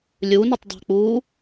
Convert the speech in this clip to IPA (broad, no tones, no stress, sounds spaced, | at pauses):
lʲ u n ə tˤ dˤ æ̤ k͡p uː